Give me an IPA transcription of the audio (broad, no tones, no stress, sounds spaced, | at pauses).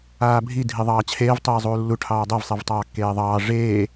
aː bʱ i dʱ i ðˤ ɑː t͡ɕʰ eː v tˤ iː zˤ uː lː u ʈʰ ɑː dˤ e v sˤ i v tˤ ɑː kː eː ðˤ ɑː ʐ eː